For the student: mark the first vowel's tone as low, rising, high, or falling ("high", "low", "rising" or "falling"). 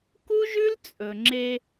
high